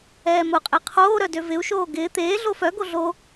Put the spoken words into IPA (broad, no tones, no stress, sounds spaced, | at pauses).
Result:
ɛː m ʊ qʼ e qʰ oː ɾ œ d ø v ɪ u̯ ʃ oː ɡ ɪː t̪ eː ɮ o f œ ɡ o ɮ o